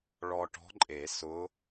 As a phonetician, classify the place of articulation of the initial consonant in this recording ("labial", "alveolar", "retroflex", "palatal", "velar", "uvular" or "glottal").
retroflex